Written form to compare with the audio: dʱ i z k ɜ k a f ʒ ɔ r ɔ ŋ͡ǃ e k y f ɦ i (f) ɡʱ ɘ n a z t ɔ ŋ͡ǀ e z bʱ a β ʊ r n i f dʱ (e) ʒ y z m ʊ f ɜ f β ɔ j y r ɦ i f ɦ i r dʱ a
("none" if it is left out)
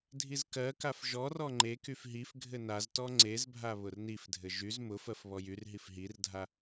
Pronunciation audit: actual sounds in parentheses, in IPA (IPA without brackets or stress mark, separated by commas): f, ɘ